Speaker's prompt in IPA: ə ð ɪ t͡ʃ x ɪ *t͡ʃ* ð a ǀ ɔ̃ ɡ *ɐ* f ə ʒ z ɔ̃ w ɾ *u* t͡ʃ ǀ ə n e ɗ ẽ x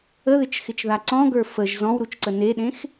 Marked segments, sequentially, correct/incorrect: correct, incorrect: ə˞, correct

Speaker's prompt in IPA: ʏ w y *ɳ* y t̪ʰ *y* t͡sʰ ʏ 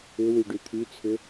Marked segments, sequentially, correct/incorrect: incorrect: ɖ, correct

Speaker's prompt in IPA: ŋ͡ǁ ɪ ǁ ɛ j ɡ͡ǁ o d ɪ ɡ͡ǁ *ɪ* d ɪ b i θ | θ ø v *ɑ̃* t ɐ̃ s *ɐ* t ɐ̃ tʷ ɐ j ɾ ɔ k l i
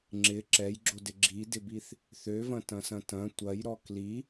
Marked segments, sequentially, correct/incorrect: incorrect: i, incorrect: ɐ̃, incorrect: ɐ̃

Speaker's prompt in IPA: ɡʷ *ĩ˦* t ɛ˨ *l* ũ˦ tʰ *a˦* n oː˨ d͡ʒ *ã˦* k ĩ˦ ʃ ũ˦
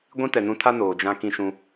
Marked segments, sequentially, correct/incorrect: correct, incorrect: n, correct, correct

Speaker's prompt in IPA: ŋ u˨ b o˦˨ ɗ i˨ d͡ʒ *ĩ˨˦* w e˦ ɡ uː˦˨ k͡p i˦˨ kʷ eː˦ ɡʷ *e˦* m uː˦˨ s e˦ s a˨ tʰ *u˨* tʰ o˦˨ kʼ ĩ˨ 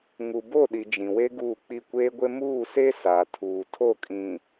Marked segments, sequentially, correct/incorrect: incorrect: ĩ˨, correct, incorrect: uː˨

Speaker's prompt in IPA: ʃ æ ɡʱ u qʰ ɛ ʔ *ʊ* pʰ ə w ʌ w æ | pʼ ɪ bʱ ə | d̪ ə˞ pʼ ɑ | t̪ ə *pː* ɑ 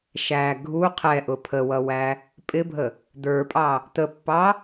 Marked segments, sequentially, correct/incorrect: correct, correct

